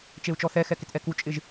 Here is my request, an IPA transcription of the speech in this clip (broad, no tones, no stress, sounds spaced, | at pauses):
t͡ʃ e u̯ t͡ʃ ɔ θ ɛ x ɛ k ɪ t ʔ ɛ k u t͡ʃʼ ɪ ʒ